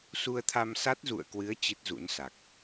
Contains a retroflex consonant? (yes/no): no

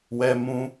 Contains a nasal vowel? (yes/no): yes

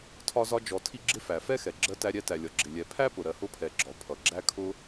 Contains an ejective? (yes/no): no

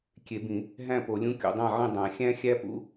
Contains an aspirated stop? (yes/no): no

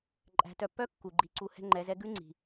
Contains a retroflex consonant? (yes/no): no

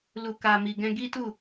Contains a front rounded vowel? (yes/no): no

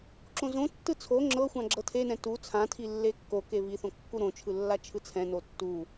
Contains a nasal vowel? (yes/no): yes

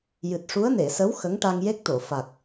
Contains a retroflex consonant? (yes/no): yes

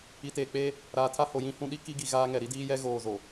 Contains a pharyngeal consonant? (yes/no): no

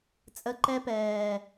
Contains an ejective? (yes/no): yes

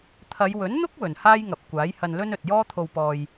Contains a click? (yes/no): no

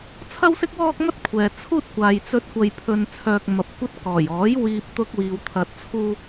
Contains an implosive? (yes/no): no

